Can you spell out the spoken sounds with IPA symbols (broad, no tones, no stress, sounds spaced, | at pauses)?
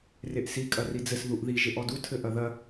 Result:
r e ʔ s i kʼ ɐ r i d͡z ɘ s ð u ʔ ð i ʒ e ʔ ɔ d u tʰ ɘ ʔ ɐ ð ɐ